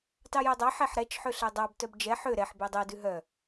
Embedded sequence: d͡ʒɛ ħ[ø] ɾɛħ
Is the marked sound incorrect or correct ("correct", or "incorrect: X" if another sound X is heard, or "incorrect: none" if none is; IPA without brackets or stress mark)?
correct